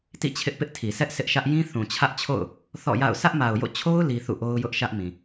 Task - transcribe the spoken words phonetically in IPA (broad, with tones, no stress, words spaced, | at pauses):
tḭ˦˨t͡ɕʰɪ˦ʔpɪ˦ʔtʰi˨ sɛ˦ʔ sʰɪ˦ʔʃä˦ʔ jĩ˦θũ˨t͡ɕʰä˦ʔt͡ɕʰo̰˦˨ʊ̯ | θɔ̰˦˨ja̰˦˨ʊ̯ sä˦ʔma˨ʊ̯jo̰˦˨ t͡ɕʰo˦ʊ̯ li˦ θṵ˦˨ ʔo˦ʊ̯jʊ˦ʔʃä˦ʔmĩ˨